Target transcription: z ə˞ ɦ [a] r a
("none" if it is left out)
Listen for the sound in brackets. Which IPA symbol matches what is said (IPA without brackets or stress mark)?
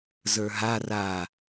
a